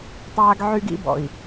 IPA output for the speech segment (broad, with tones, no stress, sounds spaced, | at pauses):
tˤ aː˦ ɡ ʕ y˦ ɡ ḭ˦ b ɔ̰˨ i̯